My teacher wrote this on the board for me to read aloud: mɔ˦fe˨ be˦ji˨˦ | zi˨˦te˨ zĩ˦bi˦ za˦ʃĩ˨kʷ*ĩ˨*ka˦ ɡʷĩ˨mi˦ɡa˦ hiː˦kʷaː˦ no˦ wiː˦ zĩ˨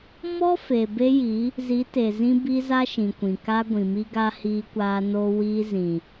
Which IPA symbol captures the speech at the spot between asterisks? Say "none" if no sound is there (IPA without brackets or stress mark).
ĩ˨